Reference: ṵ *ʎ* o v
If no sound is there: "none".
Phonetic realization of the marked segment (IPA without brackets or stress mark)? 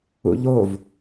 ʎ